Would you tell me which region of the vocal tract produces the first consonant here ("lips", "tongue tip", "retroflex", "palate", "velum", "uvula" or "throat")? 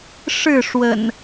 retroflex